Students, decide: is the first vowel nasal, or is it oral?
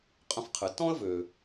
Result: nasal